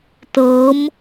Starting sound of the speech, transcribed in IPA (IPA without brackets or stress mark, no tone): t